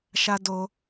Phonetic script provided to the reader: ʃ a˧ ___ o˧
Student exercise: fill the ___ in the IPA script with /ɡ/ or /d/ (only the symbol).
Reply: d